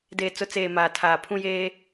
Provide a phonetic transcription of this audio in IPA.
d eː˨ t͡s ʊ˨˦ t͡s eː˨ m aː˨ tʰ aː˨ pʰ ũ˦ j eː˦

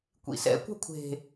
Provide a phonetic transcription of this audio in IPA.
kʷ ḭ s ɛ̰ kʷ ɛ̤ kʷʰ e̤

